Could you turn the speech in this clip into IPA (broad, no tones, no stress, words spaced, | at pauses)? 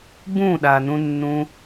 bũɗanũnːũ